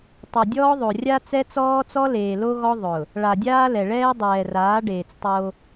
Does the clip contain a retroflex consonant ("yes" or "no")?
yes